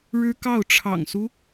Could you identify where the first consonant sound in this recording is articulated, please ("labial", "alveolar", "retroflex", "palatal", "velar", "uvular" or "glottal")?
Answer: retroflex